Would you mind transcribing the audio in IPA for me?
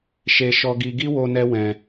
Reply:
ʃe˧ ʃɔ˦ɡi˦ ɡi˦wo˧ nɛ˦wɛ̃˧

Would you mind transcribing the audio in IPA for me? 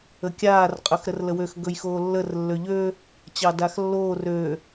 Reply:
əkʲaːr qʼɵxɾərləwøx ɡɵjxoːlːər lːøʎø | t͡ɕɑdaxlːoːr ø

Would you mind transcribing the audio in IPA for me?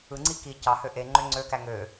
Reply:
ɯŋ͡ǀi ki cɑhø ʔeŋ͡ǃø ŋ͡ǀøkæ ŋø

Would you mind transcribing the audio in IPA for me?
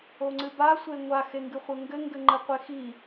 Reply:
oŋ͡ǀɨba sʷeŋʷa xeŋɡɨχʷɘŋɡɘ ŋɡɘŋ͡ǃɨqʷexi

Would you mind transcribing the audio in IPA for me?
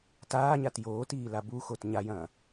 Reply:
taːɲat joːtiːla buxot ɲajɐ̃ː

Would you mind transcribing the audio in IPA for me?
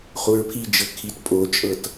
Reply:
χuɹpʰid͡ʒɤ kʰit pʼot͡ʃʼɤt

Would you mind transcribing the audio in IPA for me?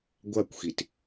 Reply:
ɡʷakʷxit

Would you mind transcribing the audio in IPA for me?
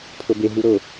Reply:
pʰɤbe ɦuɾɤ

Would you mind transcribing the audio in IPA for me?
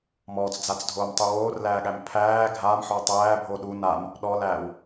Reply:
mɔːt͡sd͡zat͡sdʱoːmtˤu woːrlæːɠæm pʰæː ɡʱaːmħɔ tˤæːbʱo ɗu nam | ɗɔlæːw

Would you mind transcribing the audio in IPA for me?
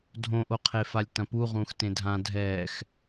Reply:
dʱõʔoqʰe falʲtɐ̃puʁũːx tẽdʱã dʱɛːx

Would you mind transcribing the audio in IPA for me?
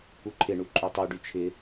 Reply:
uǃʰɪ ɳuǃʼutˤu ɖyt͡ʃʰɪ

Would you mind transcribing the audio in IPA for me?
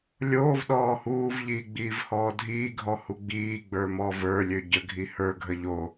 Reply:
lʲoːv ɗɔːhuːvʎiːɡ͡biːv hɔːdʱiːɡʱɔhu ɡ͡biːɡ͡bə˞mɔ və˞lʲø ɟəɡʱi hə˞ ɡʱəʎo

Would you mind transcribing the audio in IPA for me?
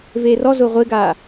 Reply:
veːrɔzʊː ʁʷɪːɡaː

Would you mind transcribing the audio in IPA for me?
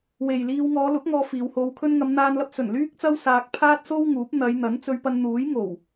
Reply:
we˨jliː˧w ŋɔː˨˧lʊ˨˥k̚ŋɔː˨˧ fiː˨˧who˧wkʰɵ˥n ŋɐ˨˧mn̪aː˧nlɐ˧p̚ sɵ˨˩n lyː˥k̚t͡sɐ˥wsaː˧k̚ pʰaː˥t̚so˥wŋuː˨˥p̚ n̪ɐ˨˧jn̪ɐ˨˥n t͡sɵ˧ɥpɐ˧nn̪uː˨˥j ŋo˨˩w

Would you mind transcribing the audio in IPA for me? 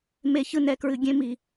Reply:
me˧çɯ˧nɛ˨kɹɨ˨ ɡʲẽ˧mi˨

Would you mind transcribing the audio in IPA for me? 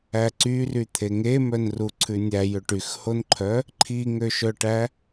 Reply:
æǀyryt̪ʰe ŋemœnru ǀʰʉnʲæjø ʈyxhonǃʰœ | ǃʰiŋøʃœʈæ

